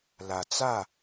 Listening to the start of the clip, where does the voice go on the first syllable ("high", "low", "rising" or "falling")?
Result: low